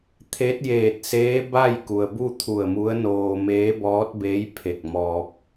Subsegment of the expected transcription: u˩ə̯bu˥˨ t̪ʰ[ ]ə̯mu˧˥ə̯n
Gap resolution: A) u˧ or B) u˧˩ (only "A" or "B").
B